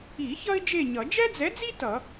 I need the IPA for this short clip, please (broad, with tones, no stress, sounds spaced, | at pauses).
i˨˩˦ ç ʌ˥ ɪ̯ d͡ʒ e˦˨ ɲ ʌ˨˩˦ d͡ʒ ɛ˥ d͡z ɛ˨˥ d͡z i˥ t ʌ˨˩˦